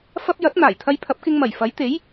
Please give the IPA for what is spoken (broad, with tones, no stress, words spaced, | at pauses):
fɐ˥p̚ jɐ˨˥t̚n̪aː˨˩jt̪ʰɐ˧j pʰɐ˨˥p̚kɪ˧ŋmɐ˨˩jfɐ˨˥j t̪e˨˥j